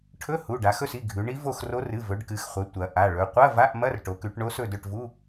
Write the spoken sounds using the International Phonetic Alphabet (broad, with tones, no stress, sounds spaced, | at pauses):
ʈʰ ɵ˧˥˧ h u˩˧˩ ɖ a˩˧ x ɵ˦˨ s i˩˧˩ ɡʱ ʉ˩˧ ɳ i˧˥ v o˦˨ x r o˧˥ r ɨ˩˧˩ v ɵ˩˧ ɖ k ɨ˩˧ x χʷ ɐ˩˧ tʷ ɐ˩˧ ʔ a˩˧˩ ɭ ɵ˩˧ qʷ ɐ˧˥˧ v a˧˥˧ ʔ m ɐ˧˥˧ r ʈ o˩˧ k ʉ˩˧ ʈ ɳ o˧˥ s ɵ˦˨ d ɵ˦˨ ʈ v u˧˥˧